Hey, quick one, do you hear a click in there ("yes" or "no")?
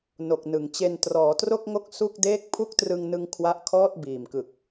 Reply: no